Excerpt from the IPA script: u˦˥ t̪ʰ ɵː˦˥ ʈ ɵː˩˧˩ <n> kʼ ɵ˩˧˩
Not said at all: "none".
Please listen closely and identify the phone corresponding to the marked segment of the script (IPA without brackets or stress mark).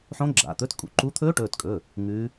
t